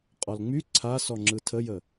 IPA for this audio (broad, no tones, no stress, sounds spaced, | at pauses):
qʼ ɔ l ŋ͡m y ǀʰ a s ɔ ŋ͡ǁ ɯ tʰ ə j ə